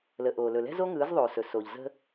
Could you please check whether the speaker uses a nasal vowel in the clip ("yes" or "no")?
no